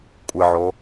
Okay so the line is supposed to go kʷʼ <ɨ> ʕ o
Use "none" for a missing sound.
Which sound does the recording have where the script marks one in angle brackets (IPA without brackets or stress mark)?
ɨ